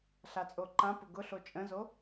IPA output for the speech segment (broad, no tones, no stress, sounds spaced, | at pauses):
ɬ a t͡sʼ o ǃ ã p ʊ ɡ ʊ ɬ o t͡ʃʼ ə̃ z o